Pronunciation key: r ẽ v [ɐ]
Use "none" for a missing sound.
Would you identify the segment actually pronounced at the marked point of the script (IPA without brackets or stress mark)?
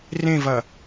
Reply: ɐ